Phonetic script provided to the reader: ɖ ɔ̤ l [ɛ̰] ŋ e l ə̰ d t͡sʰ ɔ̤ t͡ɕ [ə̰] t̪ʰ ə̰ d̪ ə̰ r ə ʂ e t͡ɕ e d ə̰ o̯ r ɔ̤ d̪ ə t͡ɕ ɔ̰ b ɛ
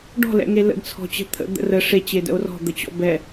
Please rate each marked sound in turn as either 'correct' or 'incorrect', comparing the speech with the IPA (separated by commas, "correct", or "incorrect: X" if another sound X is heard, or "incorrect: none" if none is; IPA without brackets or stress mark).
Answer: correct, incorrect: ə̤